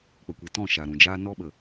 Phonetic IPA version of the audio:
k͡p ə˨ kʷ i˨ t ɔ̃˦˨ ʃ a˨ ɾ ũ˨ d͡ʒ aː˦ n ɔ˦ ɓ ə˨

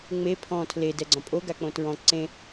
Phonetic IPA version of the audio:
ŋ͡m e pʰ ɔ̃ tʰ l e d ɛ ɡ͡ǀ ɔ̃ pʼ o ɡ a k͡p õ t ɹ ɔ̃ ǀ ẽ

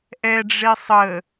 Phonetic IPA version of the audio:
ʔ ɛ ɖ͡ʐ e sˤ ə

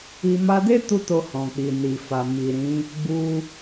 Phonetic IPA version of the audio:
i˧ m a˧ d e˦ t u˦ t o˧ h ɔ̃˨ k͡p i˨ n i˨ f a˨ m i˨ ɾ ĩ˨˦ | ɡ͡b u˧

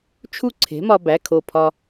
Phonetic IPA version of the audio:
t͡ʃʰ u˥˩ ǀʰ e̤˩˥ m ɒ˧ b æ˩˧˩ kʰ o˧˩ pʰ ɒ˧

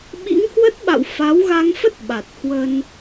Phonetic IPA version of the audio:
ɓ ḭ˧˥ ŋ h w ə˦˥ t̚ ɓ a̰˧˨ w f a˨˦ w ɣ a˧ ŋ f ə˦˥ t̚ ɓ a˨˩ t̚ h w ə˧ n

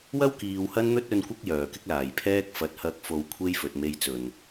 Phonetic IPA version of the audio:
w ɐ˥ w k iː˨ w h ɐ˥ n n̪ ɵ˥ t̚ ɵ˨ n kʷ ɪ˧ k̚ j œː˨˩ k ɪ˥ k̚ l aː˨˩ j pʰ ɛː˥ k̚ f ɐ˨˥ t̚ h ɐ˧ k̚ f o˨ w kʷʰ e˥ j f ɵ˨ t̚ m e˧ j t͡s ɵ˨˩ n

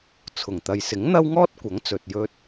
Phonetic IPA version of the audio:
t͡sʰ ʊ˨˩ ŋ t̪ ɐ˨ j s ɪ˨˥ ŋ n̪ ɐ˥ w ŋ ɔː˥ t̚ kʷ ɐ˨˥ ŋ t͡s ɵ˨ t̚ j ɵ˧ t̚

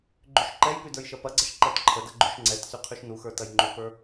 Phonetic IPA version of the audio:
ɡ͡ǃ y ʃ ǃ ɛ j p y d ə˞ j ʃ ɐ p ɐ ɡ͡ǀ ɐ ʃ ǃ ɛ t ǃʰ ə d ɐ ɡ͡ǃ y ʃ ŋ͡ǀ ɛ t s y qʰ y ʃ n u x ə˞ t ɐ j ŋ͡ǃ u p ə˞

